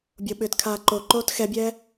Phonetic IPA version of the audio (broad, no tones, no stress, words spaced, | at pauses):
bʲoɓʏːtkʰaː ǃoǃoːt xɛbʲɛː